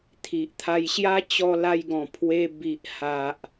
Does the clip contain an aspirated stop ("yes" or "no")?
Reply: yes